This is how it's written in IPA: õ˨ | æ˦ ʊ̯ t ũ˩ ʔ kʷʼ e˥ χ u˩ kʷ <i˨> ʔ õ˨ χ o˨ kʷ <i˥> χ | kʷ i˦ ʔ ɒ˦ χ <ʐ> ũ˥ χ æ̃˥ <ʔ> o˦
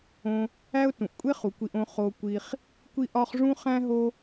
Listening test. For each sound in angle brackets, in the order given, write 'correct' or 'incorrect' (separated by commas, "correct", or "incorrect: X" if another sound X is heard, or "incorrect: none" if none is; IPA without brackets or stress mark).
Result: correct, incorrect: i˨, correct, incorrect: ɦ